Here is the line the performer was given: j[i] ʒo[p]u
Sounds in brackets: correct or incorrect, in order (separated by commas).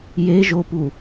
incorrect, correct